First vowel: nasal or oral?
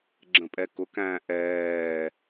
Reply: nasal